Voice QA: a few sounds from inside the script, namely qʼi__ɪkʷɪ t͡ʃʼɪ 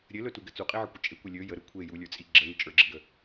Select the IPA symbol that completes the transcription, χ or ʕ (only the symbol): ʕ